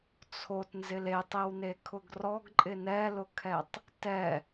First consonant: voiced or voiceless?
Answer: voiceless